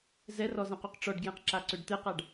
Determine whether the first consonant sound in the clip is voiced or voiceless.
voiced